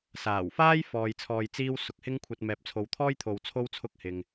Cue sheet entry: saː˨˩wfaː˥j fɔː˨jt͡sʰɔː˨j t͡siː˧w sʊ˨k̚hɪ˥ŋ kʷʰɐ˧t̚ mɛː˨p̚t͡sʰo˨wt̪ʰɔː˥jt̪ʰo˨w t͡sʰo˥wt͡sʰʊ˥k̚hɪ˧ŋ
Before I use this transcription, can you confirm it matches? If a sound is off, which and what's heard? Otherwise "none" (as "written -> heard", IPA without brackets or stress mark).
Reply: none